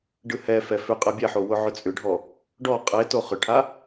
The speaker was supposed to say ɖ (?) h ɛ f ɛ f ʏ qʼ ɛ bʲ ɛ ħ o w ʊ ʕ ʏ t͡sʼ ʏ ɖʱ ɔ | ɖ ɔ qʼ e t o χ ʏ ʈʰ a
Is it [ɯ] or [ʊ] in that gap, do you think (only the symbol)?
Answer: ɯ